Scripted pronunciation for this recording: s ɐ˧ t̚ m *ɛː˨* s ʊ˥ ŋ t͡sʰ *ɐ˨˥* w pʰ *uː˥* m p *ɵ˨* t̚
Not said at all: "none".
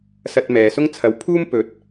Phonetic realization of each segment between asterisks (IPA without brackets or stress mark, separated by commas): ɛː˨, ɐ˧, uː˥, ɵ˨˥